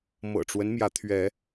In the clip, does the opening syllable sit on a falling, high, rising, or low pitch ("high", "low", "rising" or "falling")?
low